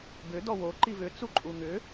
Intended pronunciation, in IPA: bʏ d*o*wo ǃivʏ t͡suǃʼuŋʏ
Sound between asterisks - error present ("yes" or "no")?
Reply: yes